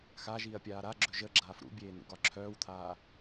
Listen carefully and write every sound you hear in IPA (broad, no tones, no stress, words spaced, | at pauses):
xaʒiːɐ̯pʲaː ɾaɡ͡ǁɵ ʒəɡ͡ǁaːf ɾṵbʲeːn̪ṵɡɒ ǁʰœːwt̪ʰaː